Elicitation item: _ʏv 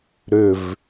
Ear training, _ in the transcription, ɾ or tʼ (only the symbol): ɾ